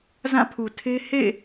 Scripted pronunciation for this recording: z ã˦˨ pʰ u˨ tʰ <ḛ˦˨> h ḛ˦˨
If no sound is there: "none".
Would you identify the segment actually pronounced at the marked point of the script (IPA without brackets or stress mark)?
e˦